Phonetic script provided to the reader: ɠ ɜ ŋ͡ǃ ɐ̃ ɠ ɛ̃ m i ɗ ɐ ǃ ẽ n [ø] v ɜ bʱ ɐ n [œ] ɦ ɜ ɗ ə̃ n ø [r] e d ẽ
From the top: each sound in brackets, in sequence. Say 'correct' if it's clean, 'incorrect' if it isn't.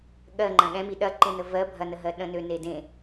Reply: incorrect: ə, incorrect: ə, incorrect: n

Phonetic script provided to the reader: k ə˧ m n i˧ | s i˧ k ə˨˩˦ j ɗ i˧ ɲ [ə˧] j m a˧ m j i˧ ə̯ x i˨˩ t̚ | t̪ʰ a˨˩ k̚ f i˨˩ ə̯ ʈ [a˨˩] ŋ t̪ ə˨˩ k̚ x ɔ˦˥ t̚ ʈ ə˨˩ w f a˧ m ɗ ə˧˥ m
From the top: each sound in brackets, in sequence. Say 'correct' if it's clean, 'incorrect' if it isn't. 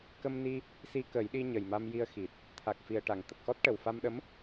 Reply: incorrect: ə˨˩, incorrect: a˨˩˨

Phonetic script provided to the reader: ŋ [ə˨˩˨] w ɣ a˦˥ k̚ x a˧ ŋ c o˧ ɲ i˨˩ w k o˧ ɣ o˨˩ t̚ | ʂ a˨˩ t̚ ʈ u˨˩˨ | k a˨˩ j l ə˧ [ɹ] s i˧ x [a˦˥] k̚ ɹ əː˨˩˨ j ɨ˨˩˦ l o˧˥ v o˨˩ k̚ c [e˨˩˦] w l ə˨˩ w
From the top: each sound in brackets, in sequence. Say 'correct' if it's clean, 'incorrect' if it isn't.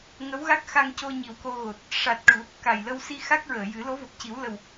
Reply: incorrect: ə˧˥, incorrect: w, correct, incorrect: i˨˩˦

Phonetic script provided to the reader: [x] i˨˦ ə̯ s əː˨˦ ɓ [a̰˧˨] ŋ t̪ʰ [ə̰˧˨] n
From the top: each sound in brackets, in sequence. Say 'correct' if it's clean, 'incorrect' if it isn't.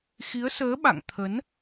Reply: correct, correct, incorrect: ə˨˦

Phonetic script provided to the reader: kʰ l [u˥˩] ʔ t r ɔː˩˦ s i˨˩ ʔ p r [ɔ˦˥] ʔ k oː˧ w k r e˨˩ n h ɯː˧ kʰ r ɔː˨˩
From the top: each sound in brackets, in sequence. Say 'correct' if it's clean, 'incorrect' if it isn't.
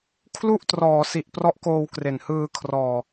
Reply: correct, correct

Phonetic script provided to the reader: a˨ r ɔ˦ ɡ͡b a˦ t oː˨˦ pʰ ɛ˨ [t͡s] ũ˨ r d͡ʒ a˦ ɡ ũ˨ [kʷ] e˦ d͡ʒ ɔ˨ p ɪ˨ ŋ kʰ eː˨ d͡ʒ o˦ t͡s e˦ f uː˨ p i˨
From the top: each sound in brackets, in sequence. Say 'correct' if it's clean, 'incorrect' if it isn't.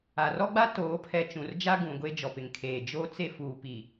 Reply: incorrect: t͡ʃ, incorrect: ɡʷ

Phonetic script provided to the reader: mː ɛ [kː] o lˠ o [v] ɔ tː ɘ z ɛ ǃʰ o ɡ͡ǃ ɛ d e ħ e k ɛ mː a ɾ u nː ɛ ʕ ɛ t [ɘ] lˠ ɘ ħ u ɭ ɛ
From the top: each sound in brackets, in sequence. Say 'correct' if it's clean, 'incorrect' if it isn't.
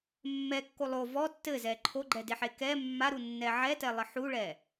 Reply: correct, correct, incorrect: ɛ

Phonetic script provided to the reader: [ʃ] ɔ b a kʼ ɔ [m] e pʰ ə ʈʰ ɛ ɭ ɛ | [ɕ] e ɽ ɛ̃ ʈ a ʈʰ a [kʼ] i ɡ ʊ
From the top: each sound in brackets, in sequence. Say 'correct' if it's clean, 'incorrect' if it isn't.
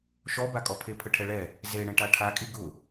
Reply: correct, incorrect: pʰ, incorrect: z, correct

